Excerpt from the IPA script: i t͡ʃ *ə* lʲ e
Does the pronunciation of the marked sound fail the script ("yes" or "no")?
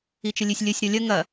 no